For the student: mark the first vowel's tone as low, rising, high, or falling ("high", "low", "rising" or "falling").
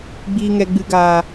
low